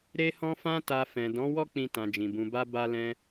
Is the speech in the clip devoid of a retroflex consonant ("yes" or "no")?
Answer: yes